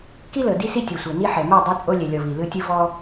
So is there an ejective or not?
yes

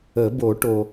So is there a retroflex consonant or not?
yes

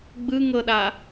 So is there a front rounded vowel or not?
no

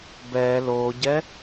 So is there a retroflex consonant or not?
no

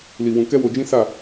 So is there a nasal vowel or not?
yes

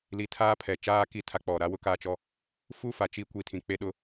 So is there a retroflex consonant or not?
no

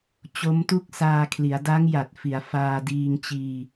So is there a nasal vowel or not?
no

